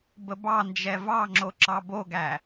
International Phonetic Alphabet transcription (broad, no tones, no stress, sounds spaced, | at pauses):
b ə b ɑ n d͡ʒ ɛ v ɑ ŋ͡ǁ o ǁ ɑ b o ɡ æ